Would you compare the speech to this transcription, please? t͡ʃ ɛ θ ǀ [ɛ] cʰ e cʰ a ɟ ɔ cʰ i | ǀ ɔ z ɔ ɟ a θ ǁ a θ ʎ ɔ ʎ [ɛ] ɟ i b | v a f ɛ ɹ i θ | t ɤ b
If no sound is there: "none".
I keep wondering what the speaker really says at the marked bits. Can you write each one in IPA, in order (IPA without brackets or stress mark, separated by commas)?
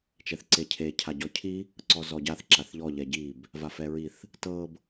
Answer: e, ɛ